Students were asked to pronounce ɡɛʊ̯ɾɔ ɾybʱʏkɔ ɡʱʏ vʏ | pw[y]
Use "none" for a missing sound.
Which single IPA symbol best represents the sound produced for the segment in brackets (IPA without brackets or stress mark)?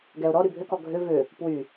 y